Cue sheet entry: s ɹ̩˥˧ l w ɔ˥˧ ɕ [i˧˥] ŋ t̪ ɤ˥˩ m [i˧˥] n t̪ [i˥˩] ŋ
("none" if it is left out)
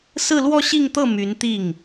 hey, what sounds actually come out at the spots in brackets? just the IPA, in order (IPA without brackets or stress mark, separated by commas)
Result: i˥˧, y˧˥, i˥˩